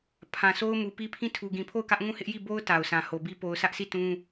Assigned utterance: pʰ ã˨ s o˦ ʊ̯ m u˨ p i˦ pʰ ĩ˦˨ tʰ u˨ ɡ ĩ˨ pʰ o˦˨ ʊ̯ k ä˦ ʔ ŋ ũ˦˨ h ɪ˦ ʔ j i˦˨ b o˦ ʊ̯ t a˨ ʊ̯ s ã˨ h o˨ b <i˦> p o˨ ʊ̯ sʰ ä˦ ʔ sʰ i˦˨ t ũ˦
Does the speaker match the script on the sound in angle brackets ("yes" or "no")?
yes